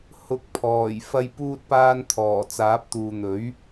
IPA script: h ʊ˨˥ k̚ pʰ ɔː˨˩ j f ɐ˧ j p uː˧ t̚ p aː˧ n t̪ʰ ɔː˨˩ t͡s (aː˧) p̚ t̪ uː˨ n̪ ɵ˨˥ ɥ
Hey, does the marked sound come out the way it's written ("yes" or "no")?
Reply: no